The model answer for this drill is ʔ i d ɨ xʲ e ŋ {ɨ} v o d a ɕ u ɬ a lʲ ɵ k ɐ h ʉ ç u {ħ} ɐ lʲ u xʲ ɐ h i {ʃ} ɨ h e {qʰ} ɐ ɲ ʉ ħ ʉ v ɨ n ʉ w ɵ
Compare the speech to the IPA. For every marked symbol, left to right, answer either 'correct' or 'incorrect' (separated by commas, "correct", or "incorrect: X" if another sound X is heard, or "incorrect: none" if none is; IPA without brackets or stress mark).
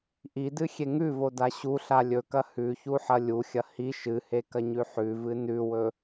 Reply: incorrect: ʉ, correct, correct, incorrect: k